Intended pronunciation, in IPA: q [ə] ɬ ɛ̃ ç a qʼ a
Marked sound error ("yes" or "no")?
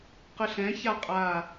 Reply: no